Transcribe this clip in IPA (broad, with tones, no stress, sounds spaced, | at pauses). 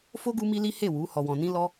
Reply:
f o˦ ɡ u˦ m i˦ l i˦ h e˦˨ w u˨˦ h ɔ˧ w ɔ̃˧ n ĩ˦ l ɔ˦